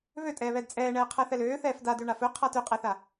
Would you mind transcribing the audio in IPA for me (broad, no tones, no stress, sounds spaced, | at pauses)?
β ø tʼ ɛː β ɛ d t͡sʼ ɛː ɳ ɛː qʰ æ θ ɛ l øː θ ɛː f d a d ø ɳ a f ɵ qʰ a t ø qʼ æ θ a